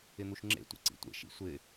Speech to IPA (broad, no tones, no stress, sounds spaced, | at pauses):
ɪ n̪ u ʃ ŋ͡ǁ ḛ tʷ ḛ ǀ ḭ tʷ ḛ ʃ ḭ sʷ ɪ